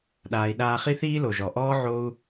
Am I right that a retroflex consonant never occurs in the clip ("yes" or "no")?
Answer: yes